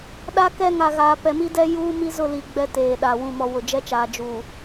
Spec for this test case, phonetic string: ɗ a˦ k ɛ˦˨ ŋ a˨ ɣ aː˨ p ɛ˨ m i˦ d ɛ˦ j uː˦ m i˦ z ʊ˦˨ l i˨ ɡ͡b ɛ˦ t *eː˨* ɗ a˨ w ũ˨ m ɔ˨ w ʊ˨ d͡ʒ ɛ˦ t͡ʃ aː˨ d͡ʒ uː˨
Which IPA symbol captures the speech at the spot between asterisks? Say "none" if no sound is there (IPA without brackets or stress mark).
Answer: eː˨